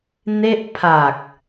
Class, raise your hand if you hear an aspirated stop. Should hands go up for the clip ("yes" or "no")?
yes